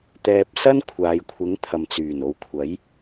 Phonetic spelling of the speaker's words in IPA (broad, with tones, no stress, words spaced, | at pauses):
t̪ɛː˧p̚ sɐ˥n kʷʰaː˨˧jkʷʰɪ˨˥ŋ t̪ʰɐ˨mt͡syː˨˩n o˨˧wkʷʰɐ˨˥j